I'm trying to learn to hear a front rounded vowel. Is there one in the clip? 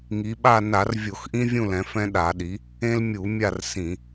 no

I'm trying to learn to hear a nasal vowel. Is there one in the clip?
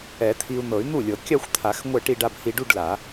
no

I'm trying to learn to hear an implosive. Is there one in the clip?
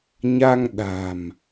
yes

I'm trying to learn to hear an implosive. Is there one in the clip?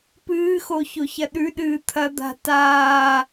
yes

